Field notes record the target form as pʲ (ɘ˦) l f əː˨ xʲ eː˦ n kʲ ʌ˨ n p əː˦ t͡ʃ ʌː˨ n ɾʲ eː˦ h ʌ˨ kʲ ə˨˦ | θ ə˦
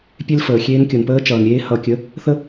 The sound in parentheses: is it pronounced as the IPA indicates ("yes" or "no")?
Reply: no